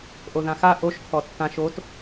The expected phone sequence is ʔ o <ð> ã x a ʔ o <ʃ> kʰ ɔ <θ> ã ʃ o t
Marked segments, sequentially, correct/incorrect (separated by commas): correct, correct, incorrect